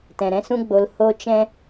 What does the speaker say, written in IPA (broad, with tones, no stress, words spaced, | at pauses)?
tɛ̃˨ɾɛ̃˦sũ˦ ɡ͡bo˧l ho˦t͡ʃɛ̃˦